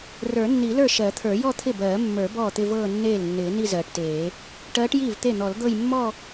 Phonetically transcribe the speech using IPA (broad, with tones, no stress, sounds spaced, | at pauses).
r ə˞˨˩˦ nː i˨˩˦ l ə˞˥˩ ʃ ɜ˨˩˦ t̪ʰ ə˞˨˩˦ j ɔ˥˧ t̪ʰ ɪ˥˩ b ɜː˨˩˦ mː ə˞˨˩˦ b ɔː˥˩ t̪ ɪ˥˧ v ɤː˥˧ nː eː˥˩ l nː ɪː˨˩˦ n i˥˧ z ɜː˨ ʈ t eː˨˩˦ | ʈ ɜː˧˥ ʈ j iː˥˩ v t̪ e˥˩ n̪ ɔ˨˩˦ l d̪ ɤ˥˧ j mː ɔ˥˧